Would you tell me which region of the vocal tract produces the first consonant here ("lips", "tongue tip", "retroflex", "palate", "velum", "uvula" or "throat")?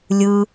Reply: tongue tip